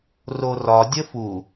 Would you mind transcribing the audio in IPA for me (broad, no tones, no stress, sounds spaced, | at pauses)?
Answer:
r o r ɒ dʲ ə f u